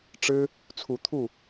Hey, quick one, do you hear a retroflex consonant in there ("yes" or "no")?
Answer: yes